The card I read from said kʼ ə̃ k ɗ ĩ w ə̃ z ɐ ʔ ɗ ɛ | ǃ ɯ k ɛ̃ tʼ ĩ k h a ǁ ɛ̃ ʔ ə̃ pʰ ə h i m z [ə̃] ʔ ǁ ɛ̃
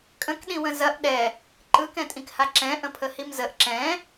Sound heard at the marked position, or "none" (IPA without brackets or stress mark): ə